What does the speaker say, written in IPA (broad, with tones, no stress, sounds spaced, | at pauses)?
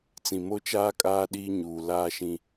t͡s ĩ˨ m o˦ t͡ʃ aː˦ kʼ aː˦ ɗ iː˦ ɲ uː˨ l aː˦ ʃ ĩ˦